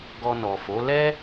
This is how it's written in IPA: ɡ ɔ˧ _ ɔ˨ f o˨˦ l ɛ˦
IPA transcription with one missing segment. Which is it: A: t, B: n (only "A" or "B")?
B